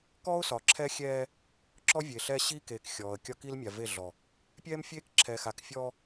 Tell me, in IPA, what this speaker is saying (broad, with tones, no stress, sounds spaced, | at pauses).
k ɔ˦ ʊ̯ s ɒ˨ ǁʰ ɛ˦ xʲ ɛː˦ | ǁ ɔ˦ vʲ e˨ ɬ ɛː˦ ɕ i˦ k eː˨ k xʲ ɔː˨ ə̯ kʲ ɒ˦ k i˦ l mʲ a˨ v e˦˨ ɮ ɔ˨ | pʲ ɛː˦ m fʲ eː˦ k ǁʰ ɛː˨ x a˨ k fʲ ɔː˦